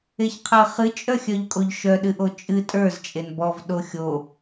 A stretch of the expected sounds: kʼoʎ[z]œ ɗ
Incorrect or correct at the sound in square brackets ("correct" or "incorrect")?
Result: incorrect